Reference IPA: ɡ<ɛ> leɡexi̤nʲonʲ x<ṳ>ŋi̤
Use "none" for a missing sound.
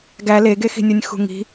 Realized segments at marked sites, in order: æ, ṳ

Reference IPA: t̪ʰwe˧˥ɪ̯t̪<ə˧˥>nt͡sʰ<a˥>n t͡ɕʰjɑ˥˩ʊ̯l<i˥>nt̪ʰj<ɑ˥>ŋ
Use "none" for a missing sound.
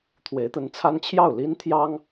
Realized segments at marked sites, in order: ə˧˥, a˥, i˥, ɑ˥

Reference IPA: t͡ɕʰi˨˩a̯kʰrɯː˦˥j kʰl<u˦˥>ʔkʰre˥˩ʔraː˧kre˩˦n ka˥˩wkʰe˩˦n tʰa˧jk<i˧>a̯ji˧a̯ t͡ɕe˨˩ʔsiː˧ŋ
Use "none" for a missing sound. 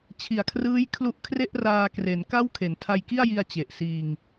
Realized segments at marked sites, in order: u˦˥, i˥˩

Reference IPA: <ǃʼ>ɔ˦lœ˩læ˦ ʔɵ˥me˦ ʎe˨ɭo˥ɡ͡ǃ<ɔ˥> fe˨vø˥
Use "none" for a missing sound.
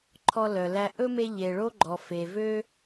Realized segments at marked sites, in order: ǃʰ, ɔ˨

